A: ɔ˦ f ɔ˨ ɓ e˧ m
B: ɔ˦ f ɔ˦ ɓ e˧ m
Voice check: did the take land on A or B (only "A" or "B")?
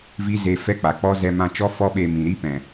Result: B